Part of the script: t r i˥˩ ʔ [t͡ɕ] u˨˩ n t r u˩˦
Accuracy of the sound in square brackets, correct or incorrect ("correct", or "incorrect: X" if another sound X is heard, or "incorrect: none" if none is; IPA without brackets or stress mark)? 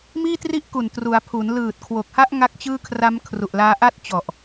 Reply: incorrect: k